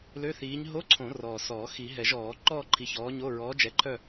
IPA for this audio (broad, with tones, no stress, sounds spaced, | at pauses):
l ø˧˥˧ θ iː˨˥ ɲ ɦ o˧˥˧ ǀʰ õ˨˩˦ r ɔː˨˩ s ɔː˨˩˦ x i˨˩˦ ɦ ɛ˨˩˦ ʒ ɔː˨˩˦ ǃ ɔː˥˧ ǃʰ i˨˥ ç ɔː˨˥ ɲ o˧˥˧ ɹ ɔː˨˥ d͡ʒ ɛ˨˥ ǃʰ œ˥˧